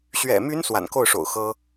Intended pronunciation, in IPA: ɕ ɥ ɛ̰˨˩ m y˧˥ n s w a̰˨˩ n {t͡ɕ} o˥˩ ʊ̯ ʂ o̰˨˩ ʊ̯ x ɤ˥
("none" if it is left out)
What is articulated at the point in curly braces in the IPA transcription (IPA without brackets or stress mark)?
k